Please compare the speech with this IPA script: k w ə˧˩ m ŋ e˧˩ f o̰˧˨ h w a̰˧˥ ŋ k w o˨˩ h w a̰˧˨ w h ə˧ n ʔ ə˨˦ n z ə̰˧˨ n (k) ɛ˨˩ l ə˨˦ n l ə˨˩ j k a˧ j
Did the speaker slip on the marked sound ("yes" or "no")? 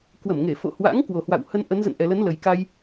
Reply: yes